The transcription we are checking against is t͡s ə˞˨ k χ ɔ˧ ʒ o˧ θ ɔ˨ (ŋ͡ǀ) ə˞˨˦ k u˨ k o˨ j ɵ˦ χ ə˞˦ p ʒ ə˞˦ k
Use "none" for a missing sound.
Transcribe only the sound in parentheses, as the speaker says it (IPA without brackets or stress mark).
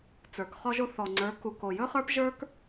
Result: ŋ͡ǀ